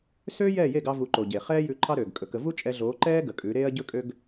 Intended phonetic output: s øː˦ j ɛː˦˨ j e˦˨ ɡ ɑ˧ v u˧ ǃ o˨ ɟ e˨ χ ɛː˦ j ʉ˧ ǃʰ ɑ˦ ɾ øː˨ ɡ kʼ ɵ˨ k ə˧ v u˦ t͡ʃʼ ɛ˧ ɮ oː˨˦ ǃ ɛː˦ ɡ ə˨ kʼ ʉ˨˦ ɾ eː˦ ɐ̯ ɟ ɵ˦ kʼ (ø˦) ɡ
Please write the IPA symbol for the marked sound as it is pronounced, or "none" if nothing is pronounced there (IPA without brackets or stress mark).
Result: ø˦